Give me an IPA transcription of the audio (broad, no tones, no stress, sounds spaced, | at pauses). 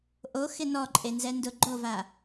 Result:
ʔ o x ɪ n ɔ ǃʼ e n z ɛ n d ʊ ɡ͡ǃ o v a